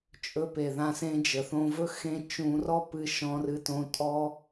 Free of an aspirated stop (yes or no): yes